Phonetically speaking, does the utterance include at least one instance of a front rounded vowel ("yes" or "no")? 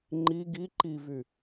yes